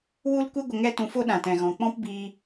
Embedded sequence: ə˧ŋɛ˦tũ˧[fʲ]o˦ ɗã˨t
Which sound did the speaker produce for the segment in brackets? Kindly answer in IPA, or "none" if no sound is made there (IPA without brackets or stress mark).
f